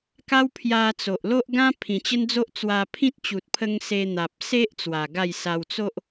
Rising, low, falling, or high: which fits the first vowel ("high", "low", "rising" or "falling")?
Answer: high